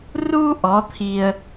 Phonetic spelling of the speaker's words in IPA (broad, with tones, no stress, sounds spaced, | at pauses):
r u˦ ʔ ɔ˨˦ t̪ʰ i˧ ə̯